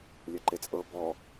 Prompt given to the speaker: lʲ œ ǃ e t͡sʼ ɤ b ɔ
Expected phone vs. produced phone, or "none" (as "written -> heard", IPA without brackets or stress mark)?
none